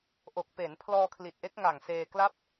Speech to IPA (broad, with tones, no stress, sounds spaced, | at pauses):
ʔ o˨˩ k̚ p eː˩˦ n pʰ l ɔː˧ kʰ l i˨˩ t̚ ʔ e˦˥ k̚ ŋ a˨˩ ŋ s eː˧ k l a˥˩ p̚